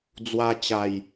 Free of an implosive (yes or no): yes